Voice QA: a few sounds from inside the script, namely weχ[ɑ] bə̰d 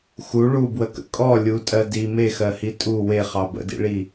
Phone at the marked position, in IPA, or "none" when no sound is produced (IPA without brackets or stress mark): ɑ